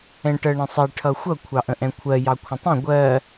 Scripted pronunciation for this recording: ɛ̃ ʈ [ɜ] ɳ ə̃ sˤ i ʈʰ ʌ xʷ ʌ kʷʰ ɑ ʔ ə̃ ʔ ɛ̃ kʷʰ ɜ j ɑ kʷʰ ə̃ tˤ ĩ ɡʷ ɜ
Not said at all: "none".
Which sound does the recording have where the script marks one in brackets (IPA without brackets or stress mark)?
ɜ